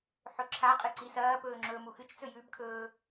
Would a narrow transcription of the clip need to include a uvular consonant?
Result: yes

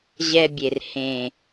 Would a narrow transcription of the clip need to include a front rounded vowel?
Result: no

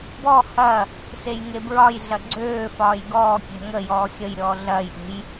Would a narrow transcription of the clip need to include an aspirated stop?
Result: no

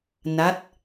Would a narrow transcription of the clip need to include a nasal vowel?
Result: no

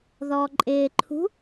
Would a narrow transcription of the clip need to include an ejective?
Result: yes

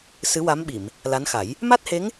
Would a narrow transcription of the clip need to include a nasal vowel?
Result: no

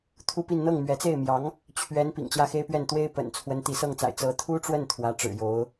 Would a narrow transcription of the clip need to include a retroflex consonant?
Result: yes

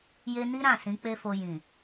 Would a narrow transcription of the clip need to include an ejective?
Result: no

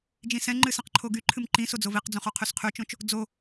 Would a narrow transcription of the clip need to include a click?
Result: yes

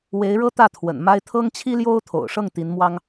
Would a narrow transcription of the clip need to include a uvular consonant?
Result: no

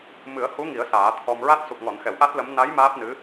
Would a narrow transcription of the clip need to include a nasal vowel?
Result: no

